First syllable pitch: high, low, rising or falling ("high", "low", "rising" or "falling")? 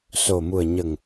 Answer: low